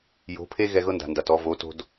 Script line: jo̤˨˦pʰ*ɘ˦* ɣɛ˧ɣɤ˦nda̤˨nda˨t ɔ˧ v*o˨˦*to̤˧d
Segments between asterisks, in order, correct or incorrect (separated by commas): incorrect, correct